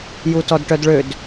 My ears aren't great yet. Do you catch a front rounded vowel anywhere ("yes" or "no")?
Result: yes